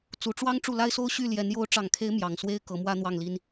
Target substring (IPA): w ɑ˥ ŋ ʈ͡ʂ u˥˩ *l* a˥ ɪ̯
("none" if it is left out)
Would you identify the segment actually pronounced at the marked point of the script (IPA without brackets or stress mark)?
l